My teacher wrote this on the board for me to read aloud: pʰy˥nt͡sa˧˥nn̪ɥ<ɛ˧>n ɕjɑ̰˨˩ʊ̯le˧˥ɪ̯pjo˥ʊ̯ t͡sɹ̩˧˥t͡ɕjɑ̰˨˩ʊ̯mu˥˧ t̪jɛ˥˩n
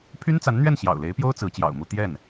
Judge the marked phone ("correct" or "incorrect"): incorrect